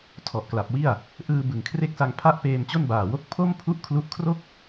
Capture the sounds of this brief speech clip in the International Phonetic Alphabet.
tʰ ɔ˨˩ ʔ k l a˨˩ p̚ w i˥˩ a̯ | ʔ ɯː˧ b ɯ˨˩ ŋ kʰ r e˥˩ k̚ s a˧ ŋ pʰ a˥˩ ʔ p eː˧ m t͡ɕ o˥˩ n b aː˨˩ w o˥˩ k̚ pʰ o˥˩ m pʰ u˥˩ ʔ kʰ l u˦˥ ʔ kʰ r o˥˩ k̚

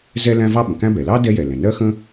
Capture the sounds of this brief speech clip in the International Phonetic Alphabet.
z ɛ˥ l æ̃˥ v ɑ˥ ɓ ə̃˩ k æ̃˥ b ɛ˩ l ɑ˥ d ɛ˥ j ɛ˩ l ɛ̃˩ n ɜ˥ x ə̃˥

